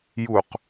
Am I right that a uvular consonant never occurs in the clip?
no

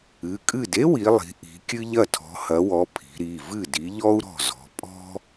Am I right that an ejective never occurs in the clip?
no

